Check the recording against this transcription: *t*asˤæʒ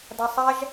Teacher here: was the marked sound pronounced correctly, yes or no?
no